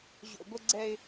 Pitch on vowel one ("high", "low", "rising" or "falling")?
low